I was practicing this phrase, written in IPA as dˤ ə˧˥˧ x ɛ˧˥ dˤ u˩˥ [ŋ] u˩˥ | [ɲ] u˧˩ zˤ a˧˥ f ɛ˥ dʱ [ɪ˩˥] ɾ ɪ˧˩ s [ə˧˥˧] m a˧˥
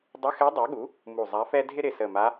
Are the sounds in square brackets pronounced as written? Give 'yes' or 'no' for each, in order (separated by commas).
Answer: no, no, no, no